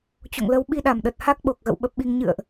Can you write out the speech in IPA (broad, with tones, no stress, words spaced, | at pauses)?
t͡ɕo̰˧˨ŋlə˨˦w ɓi˧ɗa˧˩mɗə˨˩t̚ ha˦˥k̚ɓo˨˩k̚ɣə̰˧˨w ɓə˦˥p̚ɓi˧ŋ ɲɨ̰˧˨ə̯ʔ